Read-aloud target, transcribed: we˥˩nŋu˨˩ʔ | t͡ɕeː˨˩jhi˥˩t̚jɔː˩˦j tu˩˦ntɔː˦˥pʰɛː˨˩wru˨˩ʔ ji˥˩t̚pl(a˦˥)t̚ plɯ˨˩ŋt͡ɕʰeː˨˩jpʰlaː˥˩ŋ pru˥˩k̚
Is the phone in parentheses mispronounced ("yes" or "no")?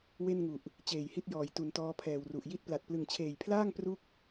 yes